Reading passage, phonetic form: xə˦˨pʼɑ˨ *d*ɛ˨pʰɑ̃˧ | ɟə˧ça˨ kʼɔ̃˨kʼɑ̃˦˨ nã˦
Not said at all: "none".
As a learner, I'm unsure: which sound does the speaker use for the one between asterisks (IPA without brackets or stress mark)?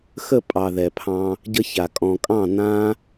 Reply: ð